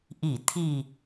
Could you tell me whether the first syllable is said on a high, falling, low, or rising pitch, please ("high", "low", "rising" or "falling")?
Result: low